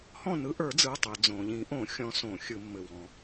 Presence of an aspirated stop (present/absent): absent